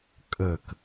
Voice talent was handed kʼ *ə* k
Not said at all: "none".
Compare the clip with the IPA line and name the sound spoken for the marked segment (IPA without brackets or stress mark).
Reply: ə